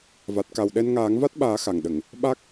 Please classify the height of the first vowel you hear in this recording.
low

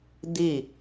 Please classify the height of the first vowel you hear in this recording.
high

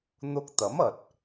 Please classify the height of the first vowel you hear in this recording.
high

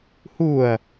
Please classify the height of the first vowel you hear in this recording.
high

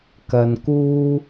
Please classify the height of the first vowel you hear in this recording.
low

